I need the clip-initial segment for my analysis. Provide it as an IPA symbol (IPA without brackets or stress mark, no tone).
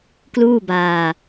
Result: k